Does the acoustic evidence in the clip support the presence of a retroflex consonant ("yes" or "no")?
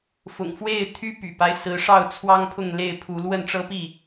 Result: yes